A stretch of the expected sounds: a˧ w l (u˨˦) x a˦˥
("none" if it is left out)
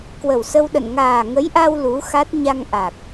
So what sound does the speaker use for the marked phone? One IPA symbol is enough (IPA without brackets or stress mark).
u˨˦